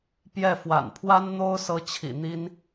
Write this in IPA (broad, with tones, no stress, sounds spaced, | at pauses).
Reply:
p j ɛ˥˩ f w a̰˨˩ n pʰ w a˥ n n̪ o˥ ʊ̯ s ɤ˥ t͡ɕʰ ḭ˨˩ n̪ i˥ n